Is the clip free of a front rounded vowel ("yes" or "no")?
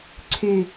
no